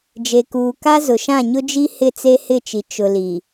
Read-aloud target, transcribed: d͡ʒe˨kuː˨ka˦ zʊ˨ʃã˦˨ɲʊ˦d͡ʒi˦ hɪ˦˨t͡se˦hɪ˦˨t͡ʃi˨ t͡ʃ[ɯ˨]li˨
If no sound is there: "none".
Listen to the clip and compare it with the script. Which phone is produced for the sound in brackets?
ʊ˨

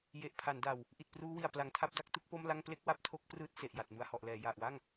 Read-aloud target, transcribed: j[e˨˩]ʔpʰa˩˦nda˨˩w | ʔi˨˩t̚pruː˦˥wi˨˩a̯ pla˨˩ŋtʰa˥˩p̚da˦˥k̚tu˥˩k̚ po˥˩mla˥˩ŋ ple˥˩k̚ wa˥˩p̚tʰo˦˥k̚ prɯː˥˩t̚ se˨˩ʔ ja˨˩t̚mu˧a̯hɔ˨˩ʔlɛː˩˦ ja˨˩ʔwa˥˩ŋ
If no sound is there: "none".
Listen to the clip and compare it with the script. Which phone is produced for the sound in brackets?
e˨˩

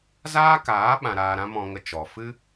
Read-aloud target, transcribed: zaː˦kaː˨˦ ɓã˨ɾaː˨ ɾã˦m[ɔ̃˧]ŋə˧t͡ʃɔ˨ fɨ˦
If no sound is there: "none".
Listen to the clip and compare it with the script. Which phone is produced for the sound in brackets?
ɔ̃˧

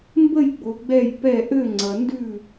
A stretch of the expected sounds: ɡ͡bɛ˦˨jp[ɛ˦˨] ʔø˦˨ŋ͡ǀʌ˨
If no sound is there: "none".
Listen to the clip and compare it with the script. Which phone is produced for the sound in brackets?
ɛ˦˨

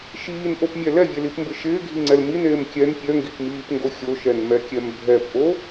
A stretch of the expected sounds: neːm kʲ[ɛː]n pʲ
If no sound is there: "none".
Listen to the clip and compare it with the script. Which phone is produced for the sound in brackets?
ɛ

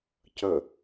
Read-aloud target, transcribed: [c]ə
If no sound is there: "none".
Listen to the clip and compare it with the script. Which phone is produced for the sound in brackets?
c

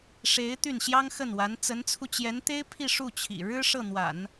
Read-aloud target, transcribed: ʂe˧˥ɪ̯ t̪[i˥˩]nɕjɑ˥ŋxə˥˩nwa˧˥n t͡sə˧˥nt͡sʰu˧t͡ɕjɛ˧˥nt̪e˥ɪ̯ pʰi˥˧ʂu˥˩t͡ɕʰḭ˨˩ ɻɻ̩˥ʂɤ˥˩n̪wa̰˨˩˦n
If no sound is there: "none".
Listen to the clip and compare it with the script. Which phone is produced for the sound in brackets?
y˥˩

